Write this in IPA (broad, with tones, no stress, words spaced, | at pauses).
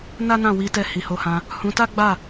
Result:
na˦nã˦˨wi˧tɛ˧ hi˨ho˨˦hã˧ | hũ˧ta˦ɡ͡ba˦˨